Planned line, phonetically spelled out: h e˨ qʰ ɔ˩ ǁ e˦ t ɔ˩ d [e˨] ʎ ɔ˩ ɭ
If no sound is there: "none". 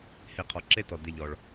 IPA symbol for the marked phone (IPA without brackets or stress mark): e˨